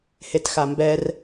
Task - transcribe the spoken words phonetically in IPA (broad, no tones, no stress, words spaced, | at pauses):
hetxambɛr